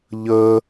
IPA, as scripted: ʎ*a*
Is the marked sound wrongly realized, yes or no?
yes